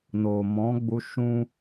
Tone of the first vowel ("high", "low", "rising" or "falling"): low